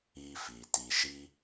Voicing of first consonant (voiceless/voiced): voiceless